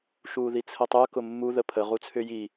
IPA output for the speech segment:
ʃ uː ð i t͡sʰ ə tˤ œ k ʊ mː u ð ə pʰ ə ʁ u t͡sʰ ʏ j i

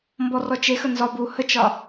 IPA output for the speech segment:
m b ɔ r ɔ t͡ʃ e x ə n z ɒ b u h ə t͡ʃ ɒ

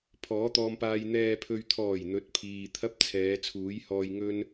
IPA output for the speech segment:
pʰ ɔː˨˥ t̪ ɔː˧ m p aː˧ j n̪ ɛː˨ pʰ ɵ˨ ɥ t̪ʰ ɔː˨˩ j n̪ ɵ˨˥ t̚ pʰ iː˨ t̪ʰ ɐ˥ p̚ t͡sʰ ɛː˨˧ t͡sʰ uː˨˥ j h ɔː˧ j ŋ ɵ˥ n

